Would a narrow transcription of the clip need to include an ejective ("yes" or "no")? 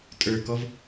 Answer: yes